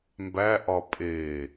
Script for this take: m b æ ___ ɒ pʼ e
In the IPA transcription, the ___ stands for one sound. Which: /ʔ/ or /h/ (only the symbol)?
ʔ